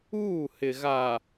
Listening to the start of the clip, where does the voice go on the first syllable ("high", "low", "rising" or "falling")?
falling